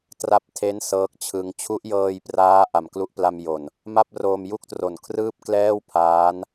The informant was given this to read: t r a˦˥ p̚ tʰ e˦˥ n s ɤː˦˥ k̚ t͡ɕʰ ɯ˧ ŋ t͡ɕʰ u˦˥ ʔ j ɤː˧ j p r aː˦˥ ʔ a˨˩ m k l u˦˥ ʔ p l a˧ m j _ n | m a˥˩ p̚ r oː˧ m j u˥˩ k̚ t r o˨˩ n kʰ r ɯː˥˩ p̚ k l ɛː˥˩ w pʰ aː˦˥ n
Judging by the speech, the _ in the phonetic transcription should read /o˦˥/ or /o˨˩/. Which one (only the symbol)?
o˨˩